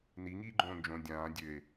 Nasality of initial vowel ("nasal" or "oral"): oral